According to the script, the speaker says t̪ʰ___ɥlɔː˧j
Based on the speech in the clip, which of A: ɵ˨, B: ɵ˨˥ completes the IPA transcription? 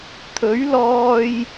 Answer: B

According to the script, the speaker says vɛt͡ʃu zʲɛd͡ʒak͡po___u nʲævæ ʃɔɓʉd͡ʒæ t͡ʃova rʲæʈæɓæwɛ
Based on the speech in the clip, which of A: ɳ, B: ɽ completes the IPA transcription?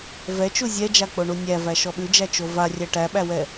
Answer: A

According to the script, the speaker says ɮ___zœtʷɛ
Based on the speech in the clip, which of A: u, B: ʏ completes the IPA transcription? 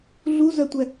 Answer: A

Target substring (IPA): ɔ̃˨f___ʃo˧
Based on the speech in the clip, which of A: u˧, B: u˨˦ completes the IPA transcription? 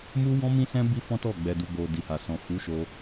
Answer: B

